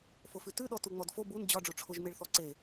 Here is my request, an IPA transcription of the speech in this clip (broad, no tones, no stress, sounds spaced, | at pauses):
f o f ʉ t ʉ ɗ ɔ t u ŋ͡m ɔ d f o b u n d͡ʑ ɒ ɖ͡ʐ o ʈ͡ʂʰ ʊ ʒ m e ɭ θ ɔ ǀ e